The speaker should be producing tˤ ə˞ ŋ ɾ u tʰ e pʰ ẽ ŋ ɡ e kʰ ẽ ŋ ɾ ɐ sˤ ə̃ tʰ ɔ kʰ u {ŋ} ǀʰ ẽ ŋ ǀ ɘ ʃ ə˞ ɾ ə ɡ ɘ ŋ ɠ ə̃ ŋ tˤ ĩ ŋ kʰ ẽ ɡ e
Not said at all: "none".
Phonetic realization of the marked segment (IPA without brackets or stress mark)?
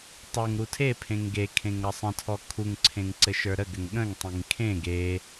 ŋ